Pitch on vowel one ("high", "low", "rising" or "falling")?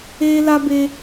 high